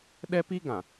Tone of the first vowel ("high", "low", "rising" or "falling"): high